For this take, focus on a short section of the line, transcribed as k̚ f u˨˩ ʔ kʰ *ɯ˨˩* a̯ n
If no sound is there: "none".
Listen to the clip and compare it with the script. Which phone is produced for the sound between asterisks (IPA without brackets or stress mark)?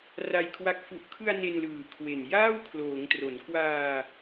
ɯ˧